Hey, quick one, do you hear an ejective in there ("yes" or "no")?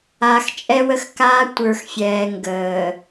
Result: yes